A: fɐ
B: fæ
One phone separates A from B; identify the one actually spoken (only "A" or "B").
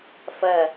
A